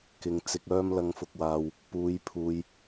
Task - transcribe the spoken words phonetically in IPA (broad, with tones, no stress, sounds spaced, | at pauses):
k ɪ˨˧ ŋ t͡s ɪ˨ k̚ œː˧ m l ɐ˨˧ ŋ f ʊ˨ k̚ w aː˨ w | p uː˨˧ j pʰ uː˨ j